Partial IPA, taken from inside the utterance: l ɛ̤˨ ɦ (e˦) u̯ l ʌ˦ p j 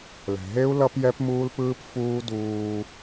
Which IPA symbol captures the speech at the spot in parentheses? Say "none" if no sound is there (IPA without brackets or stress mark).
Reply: e˦